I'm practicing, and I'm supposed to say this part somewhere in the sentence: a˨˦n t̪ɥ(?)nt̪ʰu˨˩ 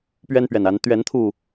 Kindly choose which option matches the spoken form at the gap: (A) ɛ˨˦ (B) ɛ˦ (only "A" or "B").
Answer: A